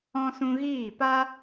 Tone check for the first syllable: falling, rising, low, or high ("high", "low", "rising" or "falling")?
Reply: high